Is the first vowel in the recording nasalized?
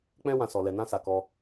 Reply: yes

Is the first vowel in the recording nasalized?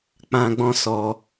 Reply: yes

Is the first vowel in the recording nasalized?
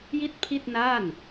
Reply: no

